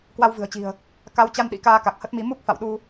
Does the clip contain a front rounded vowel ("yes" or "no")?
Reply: no